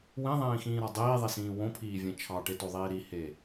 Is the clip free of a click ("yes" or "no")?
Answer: yes